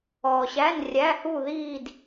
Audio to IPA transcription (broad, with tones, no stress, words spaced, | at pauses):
ɔː˨ɕæ˧˥˧n rʲæ˧˥˧hu˥˧ðiː˥˧d